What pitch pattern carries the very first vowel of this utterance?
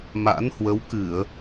rising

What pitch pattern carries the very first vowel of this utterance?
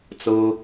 high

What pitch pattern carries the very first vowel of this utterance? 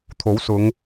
rising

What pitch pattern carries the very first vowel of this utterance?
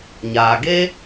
low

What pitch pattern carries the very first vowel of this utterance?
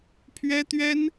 high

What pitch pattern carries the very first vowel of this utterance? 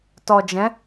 low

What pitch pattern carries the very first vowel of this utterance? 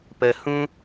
low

